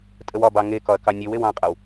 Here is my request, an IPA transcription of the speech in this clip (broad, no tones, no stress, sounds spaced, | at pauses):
tʼ ə w ɒ b ɑ ŋ e k ɒ ɐ̯ k ɑ nʲ e w e w ɑ̃ qʼ a w